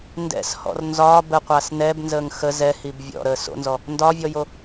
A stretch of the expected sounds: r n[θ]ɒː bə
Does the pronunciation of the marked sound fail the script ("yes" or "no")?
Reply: yes